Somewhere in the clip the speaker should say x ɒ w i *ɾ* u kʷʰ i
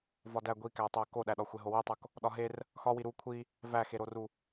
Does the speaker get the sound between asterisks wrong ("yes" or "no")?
no